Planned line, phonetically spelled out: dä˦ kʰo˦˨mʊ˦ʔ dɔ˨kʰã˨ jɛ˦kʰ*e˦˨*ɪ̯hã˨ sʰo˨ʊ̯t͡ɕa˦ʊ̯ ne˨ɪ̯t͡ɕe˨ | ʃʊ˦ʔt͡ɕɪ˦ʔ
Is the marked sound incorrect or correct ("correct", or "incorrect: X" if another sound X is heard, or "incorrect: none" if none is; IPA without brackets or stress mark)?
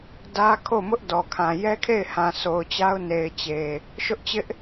correct